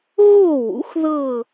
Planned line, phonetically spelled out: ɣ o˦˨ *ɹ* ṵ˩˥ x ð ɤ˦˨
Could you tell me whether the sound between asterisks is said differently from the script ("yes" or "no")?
yes